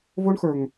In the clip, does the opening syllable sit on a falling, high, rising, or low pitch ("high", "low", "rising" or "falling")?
high